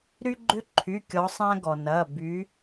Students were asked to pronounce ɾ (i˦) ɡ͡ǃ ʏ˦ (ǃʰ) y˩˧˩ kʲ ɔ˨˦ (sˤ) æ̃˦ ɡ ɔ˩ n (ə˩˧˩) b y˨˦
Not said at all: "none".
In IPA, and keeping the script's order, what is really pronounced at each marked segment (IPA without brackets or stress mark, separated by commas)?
y˦, ǃʰ, sˤ, ɐ˩˧˩